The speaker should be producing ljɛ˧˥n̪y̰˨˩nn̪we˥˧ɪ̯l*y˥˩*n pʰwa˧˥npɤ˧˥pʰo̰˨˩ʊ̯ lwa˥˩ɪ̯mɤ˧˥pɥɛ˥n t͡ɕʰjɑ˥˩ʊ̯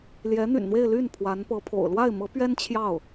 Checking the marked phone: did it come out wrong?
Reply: no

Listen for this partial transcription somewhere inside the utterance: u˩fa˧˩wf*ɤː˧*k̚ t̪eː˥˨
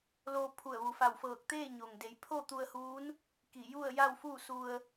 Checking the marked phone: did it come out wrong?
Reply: yes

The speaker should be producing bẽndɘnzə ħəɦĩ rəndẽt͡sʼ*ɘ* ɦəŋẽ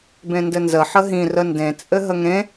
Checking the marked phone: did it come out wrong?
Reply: no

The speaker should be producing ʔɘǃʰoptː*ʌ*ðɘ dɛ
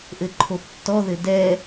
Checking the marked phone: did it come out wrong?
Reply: yes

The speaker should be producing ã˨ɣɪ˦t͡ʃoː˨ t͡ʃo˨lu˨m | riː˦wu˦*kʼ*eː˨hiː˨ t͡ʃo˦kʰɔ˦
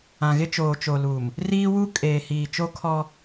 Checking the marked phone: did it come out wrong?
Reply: no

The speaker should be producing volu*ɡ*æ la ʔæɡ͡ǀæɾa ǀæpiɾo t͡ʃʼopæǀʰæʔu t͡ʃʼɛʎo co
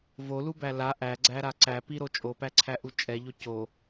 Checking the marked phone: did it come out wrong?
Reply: yes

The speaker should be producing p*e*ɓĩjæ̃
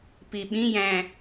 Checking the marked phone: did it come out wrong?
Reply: yes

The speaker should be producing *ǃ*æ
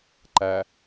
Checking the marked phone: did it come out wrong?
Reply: no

